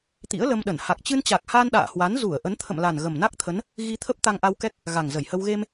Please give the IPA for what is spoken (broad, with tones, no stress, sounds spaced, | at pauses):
t̪ ḭ˧˥ ə̯ l ə˧ m ɗ ə˧˩ n h a˨˩ k̚ t͡ɕ ɨ˧ n t͡ɕ a˨˩ k̚ h aː˧ n ɗ a̰ː˧˨ h w a˨˦ n z u˧˩ ə̯ ʔ ə˨˦ n t̪ʰ ə̰˧˨ m l a˨˩ n ɣ ə˨˩ m n a˦˥ k̚ t̪ʰ ə˨˦ n | ɣ i˧ t̪ʰ ə˦˥ p̚ t̪ a˧ ŋ ʔ a˧ w k ɛ˦˥ k̚ | ɣ a˨˩ ŋ z ə˧˩ j h ə˧ w ɣ e˧ m